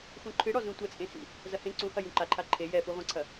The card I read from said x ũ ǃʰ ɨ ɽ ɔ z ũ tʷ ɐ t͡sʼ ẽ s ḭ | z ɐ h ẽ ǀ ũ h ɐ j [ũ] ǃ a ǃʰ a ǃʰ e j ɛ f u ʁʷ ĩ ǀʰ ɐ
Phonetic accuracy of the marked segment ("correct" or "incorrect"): correct